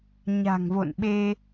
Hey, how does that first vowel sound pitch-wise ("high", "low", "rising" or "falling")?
low